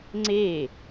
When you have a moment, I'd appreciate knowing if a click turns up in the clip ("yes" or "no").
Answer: yes